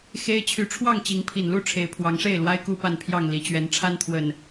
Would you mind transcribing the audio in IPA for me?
x e˦ ɪ̯ t͡ɕʰ y˨˦ ʈ͡ʂʰ w ɑ˥˨ ŋ t͡ɕ i˨˦ ŋ pʰ i˨˩ n l u˥˨ ʈ͡ʂʰ e˨˦ ɪ̯ pʰ w ɑ˨˦ ŋ ʂ e˥˨ ɪ̯ l w a˦ ɪ̯ k u˥˨ p a˥˨ n pʰ j ɑ˥˨ ŋ l i˨˦ t͡ɕ ɥ ɛ˨˦ n ʈ͡ʂʰ a˦ n t̪ʰ w ə˨˩ n

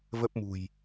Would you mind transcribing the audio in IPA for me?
v ə˦˥ p̚ m ṳ˨˩ j

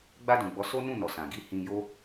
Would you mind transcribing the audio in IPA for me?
ɡ͡b a˧ d ũ˨ ɡ͡b ɔ˨˦ s o˦ n ũ˦˨ n ɔ˨ s ã˨ ɡ i˧ h ĩ˧ j o˦

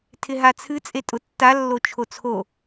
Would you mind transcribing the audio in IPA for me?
tʰ ɪ ɦ a t͡sʰ ɨ t͡sʼ e tʼ ʊ tː a lː o t͡ʃʰ o t͡sʰ o

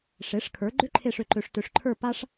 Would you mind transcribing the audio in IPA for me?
ʂ e˩˥ ʂ kʰ ə˞˩˥ ɡ͡ǃ ʏ˥ ǃʰ e˦˨ ʂ ø˨ ǃ ø˨ ʂ t ø˨ ʂ ǃʰ ə˞˦˨ p a˥ ʂ

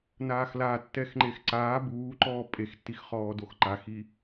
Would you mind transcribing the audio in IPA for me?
n aː x l a tː ɛ x ŋ͡ǃ e x ǀ aː b uː ǃ ɔː pʼ e x tː i x χ ɔː d o x ǃ a x i

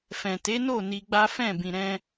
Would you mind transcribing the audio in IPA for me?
f ɛ̃˨ t e˨˦ n o˦˨ n i˧ ɡ͡b a˦ f ɛ̃˦˨ b ĩ˨ ɾ ɛ̃˧

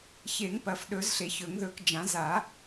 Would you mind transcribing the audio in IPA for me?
ç e˨˩˦ ŋ p ɐ˨˩˦ f ɗ ɵ˨˩˦ z ɬ e˨˩˦ ç ɵ˨˩˦ ŋ ð ɵ˨˩˦ k d͡ʒ ã˨˩˦ z a˨˩˦

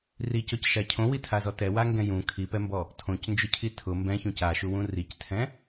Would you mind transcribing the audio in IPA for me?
r i c ɔ c ʃ a cʰ õ w i tʰ a z ɔ t ɛ w a ŋ ɡ ɛ̃ j ũ kʰ i p ɛ m b ɔ | tʰ õ c n d͡ʒ ʊ cʰ i tʰ ʊ m b ɛ̃ ç ũ c a ʃ u w ũ r i c tʰ ɛ̃

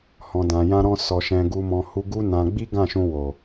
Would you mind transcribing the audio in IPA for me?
h ɔ̃˨ d ã˨ j ã˧ ɾ ɔ̃˧ s ɔ˨ ʃ ɛ̃˨ ɡ u˨ m ɔ̃˨ h u˧ ɡ u˦ n ã˧ ɡ͡b i˦ ɡ ã˦˨ ʃ ũ˧ w o˨

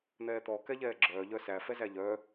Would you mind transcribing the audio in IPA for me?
n̪ ɛː t̪ ɔ k ɛ ʎ ɛː ɡ͡ǁ œː ʎ œ s æ f ɛ z æ ʎ œ

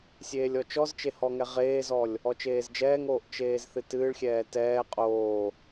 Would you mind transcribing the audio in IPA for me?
sʲ eː lʲ ɔ t͡ʃ ɔ z t͡ʃ e h ɔ ŋ ɛ ʁ eː z ɔ lʲ | ɔ t͡ʃ eː z d͡ʒ ɛː ŋ oː ʔ t͡ʃ eː z θ ɨ t ɨː ɭ xʲ ɛː t ɛː qʼ oː

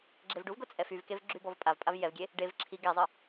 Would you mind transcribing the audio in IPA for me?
ɡ͡ǁ e v ɖ u v ɡ o t͡sʼ ɛ f y v k e v ɡ͡ǁ y b ɔ v pʼ a v pʼ a v j ɛ v ɡʲ e | ɖ e v ǁʰ i ɡ ɛ zˤ ə

